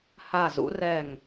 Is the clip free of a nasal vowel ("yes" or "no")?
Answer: yes